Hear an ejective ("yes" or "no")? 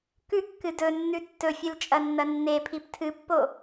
yes